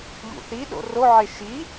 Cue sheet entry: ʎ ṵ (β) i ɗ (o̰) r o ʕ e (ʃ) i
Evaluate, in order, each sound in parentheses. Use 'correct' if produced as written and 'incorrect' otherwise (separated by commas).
incorrect, correct, correct